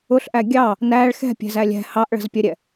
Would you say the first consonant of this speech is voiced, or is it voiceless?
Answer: voiceless